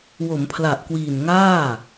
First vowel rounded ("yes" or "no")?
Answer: yes